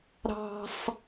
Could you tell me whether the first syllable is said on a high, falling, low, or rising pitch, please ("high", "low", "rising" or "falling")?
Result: high